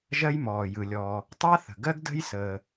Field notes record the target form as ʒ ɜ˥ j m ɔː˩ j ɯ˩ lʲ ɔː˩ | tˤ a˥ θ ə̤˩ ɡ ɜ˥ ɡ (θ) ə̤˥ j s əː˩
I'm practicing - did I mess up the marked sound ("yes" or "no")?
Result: yes